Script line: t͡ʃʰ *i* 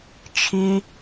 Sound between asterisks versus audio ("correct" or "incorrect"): correct